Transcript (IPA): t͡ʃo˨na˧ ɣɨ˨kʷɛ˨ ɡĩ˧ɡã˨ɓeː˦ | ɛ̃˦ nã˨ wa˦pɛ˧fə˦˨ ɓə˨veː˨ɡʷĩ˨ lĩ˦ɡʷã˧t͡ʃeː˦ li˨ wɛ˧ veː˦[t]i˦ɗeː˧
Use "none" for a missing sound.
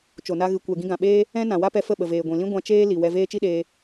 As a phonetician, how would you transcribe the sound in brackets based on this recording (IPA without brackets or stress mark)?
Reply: t͡ʃ